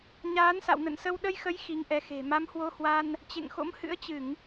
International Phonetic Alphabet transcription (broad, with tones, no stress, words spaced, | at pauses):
ɲaː˨˦nsa̰˧˨wnə̰˧˨nsə˧w ɗə˧jxə˨˦j xi˨˦ŋʔɛ˨˦xe̤˨˩ ma˨˦mhwo˧hwa˧n | t͡ɕḛ˧˨ŋxo̰˧˥mhɨ̰˧˥ə̯ t͡ɕɨ˧˩˨ŋ